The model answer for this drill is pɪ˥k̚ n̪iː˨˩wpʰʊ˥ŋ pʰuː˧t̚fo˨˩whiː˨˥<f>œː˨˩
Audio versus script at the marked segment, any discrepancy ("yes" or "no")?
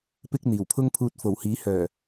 yes